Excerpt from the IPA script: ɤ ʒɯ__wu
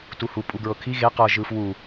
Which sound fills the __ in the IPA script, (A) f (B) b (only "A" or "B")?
A